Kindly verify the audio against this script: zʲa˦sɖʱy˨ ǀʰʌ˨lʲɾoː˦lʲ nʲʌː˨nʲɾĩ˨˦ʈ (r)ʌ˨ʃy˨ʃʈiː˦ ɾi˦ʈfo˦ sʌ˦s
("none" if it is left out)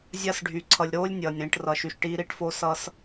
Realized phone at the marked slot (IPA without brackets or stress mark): r